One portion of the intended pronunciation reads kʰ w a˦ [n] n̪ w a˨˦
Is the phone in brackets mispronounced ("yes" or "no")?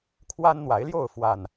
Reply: no